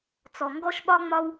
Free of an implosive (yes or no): no